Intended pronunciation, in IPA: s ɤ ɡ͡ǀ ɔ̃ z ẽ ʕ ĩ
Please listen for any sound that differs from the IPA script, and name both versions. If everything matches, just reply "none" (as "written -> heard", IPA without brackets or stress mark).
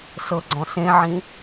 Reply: z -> s